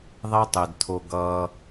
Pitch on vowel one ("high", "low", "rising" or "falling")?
high